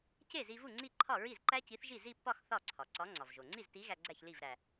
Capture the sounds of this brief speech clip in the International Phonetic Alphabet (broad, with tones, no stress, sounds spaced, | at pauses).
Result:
c e˥˩ z i˧ v u˥˩ ŋ͡ǀ i˥˩ ǃʰ ɒ˥˩ ɹ i˥˩ z ǃ æ˦˥ c i˨˥ θ ʒ i˥˩ z i˥˧ pː ɒ˥˧ x θ ɒ˥˩ ǀʰ ɒ˩ ǀ ɒ˨˥ ŋ͡ǀ ɒ˩ v ʒ o˩ ŋ͡ǀ i˥˩ z t i˨˥ ɣ æ˧ ɡ͡ǀ æ˥˩ ç l i˥˩ v ɾ æ˩